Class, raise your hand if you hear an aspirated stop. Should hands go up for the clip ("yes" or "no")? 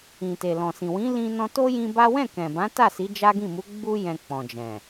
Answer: no